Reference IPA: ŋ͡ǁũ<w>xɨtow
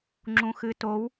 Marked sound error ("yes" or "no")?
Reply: yes